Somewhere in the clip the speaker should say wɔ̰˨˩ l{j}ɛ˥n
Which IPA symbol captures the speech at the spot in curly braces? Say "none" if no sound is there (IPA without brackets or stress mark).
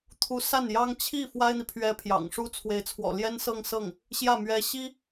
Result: j